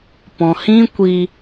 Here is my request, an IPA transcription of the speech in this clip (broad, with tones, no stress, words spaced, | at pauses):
pɔ̃˨hĩ˦ kʷi˧